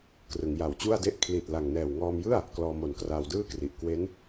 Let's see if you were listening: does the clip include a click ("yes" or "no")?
no